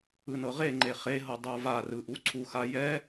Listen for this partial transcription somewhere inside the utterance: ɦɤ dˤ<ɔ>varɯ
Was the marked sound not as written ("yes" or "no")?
yes